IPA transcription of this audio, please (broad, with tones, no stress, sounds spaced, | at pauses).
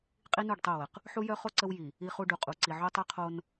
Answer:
qʼ i˦ n u˦˨ ɖ tˤ o˦˨ w ə˨ q | ħ u˦ j œ˦ χ o˦ ǀ ə˦ w j i˨ | i˦ χ u˦ ɖ u˨ qʼ u˨ ǀ i˨ ʕ o˦ tˤ œ˦ qʰ o˦ n